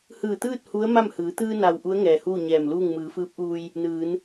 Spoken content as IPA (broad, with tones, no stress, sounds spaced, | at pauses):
h ɯː˧˩ t̪ ɯː˥˨ t̚ h u˧˥ ə̯ m a˥˨ m h ɯː˩˧ t̪ ɯː˧ n a˩ w ʔ u˧˥ ə̯ ŋ ɛː˩ h uː˥˨ ɲ ɛː˧˩ m l uː˥˨ ŋ m ɯː˩˧ f ɯː˧˥ p̚ ʔ uː˧ j | n ɯː˩˧ n